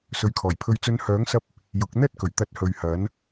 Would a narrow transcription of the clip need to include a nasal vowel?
no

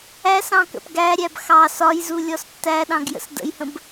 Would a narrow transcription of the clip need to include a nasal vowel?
yes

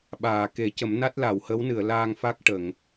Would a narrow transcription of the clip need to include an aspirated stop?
no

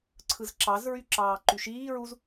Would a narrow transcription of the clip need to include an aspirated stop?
yes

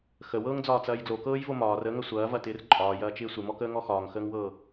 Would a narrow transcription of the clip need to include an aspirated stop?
no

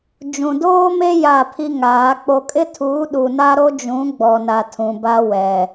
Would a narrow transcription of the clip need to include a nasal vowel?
yes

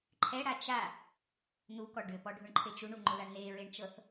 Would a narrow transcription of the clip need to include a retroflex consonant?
yes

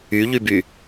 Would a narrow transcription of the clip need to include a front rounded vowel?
yes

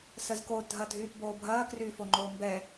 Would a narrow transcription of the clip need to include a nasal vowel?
no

